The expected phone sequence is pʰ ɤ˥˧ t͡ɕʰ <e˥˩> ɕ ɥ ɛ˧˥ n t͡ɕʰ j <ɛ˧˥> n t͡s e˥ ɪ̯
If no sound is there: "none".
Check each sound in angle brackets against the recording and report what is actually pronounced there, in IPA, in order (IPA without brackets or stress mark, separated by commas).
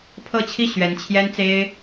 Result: i˥˩, ɛ˥